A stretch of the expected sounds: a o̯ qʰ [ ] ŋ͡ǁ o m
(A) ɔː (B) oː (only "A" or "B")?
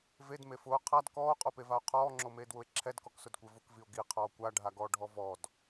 A